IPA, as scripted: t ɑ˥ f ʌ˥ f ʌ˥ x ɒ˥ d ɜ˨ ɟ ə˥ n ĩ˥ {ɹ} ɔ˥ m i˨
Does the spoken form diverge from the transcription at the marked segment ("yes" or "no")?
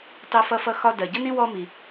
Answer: yes